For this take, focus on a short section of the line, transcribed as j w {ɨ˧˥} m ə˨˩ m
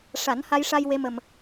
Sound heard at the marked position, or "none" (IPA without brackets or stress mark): e˧˥